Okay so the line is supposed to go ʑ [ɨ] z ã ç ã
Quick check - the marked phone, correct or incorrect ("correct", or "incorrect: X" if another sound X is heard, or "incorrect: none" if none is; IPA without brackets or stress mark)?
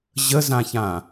incorrect: ə